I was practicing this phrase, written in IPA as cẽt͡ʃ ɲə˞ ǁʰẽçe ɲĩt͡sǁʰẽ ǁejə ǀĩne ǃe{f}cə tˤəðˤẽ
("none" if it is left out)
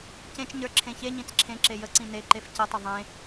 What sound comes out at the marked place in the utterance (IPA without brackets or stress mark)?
f